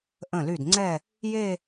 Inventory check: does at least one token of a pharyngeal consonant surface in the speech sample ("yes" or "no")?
no